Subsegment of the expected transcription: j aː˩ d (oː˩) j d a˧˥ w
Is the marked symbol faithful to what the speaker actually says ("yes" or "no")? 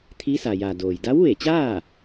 yes